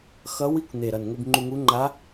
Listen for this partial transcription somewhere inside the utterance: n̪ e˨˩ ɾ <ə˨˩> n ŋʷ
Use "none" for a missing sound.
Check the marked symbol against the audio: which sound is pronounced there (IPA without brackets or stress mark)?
ʌ˨˩